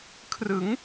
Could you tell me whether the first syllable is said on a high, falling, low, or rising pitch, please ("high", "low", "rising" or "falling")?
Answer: rising